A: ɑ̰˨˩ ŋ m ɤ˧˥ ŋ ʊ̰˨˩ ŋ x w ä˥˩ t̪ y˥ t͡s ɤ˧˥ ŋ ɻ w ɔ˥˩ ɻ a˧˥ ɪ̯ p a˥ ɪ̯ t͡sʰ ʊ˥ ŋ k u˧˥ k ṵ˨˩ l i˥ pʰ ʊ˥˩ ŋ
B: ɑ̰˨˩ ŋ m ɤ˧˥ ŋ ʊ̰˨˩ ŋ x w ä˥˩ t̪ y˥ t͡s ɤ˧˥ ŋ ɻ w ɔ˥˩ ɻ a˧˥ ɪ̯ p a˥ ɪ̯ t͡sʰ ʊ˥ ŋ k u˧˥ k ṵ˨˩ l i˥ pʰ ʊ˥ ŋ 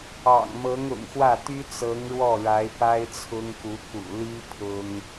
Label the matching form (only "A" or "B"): B